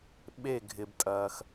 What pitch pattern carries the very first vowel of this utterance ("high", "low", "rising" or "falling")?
falling